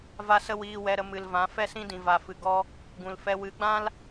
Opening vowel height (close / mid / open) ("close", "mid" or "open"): open